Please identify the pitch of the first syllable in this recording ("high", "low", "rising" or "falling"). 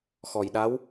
low